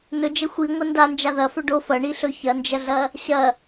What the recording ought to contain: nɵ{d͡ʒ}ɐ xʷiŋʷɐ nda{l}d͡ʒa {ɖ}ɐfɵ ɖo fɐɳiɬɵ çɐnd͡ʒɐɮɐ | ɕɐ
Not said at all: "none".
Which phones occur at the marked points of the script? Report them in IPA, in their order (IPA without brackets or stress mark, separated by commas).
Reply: d͡ʒ, n, ð